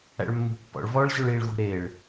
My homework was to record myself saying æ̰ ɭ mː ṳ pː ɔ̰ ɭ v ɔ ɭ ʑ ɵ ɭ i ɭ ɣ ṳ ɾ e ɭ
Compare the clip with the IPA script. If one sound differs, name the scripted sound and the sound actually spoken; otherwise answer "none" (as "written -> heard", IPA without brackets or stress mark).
none